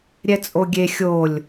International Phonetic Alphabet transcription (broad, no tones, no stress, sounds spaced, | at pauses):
ɾʲ ɛ t͡sʼ o ɡʲ e xʲ o lʲ